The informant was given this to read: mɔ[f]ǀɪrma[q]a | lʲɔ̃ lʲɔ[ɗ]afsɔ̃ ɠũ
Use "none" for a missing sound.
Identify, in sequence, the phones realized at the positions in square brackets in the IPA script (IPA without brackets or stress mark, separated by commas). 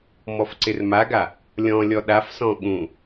f, ɡ, ɗ